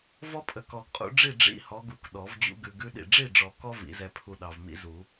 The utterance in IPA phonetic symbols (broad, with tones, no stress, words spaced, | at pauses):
vɔ˦pʼə˨ kɔ˨ɡqʼṵ˨˦ɖ͡ʐi˥˨ ɖ͡ʐḭ˦hɔ˨˦ɡu˨k ɗɔ˨˩˦vd͡ʑṵ˦ɡʉ˨ ɡʉ˦ɗḭ˨ ɖ͡ʐi˥˨ɖ͡ʐɔ˨kɔ˦ vḭ˨˦zɛ˦pʰu˦ ɗɑ˨vmḭ˦zu˨˩˦